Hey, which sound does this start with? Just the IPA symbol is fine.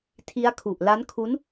tʰ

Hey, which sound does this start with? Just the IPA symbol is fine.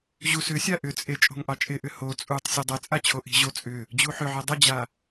ʑ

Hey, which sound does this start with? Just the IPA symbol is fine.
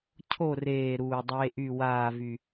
cʰ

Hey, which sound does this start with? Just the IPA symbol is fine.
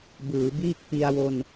b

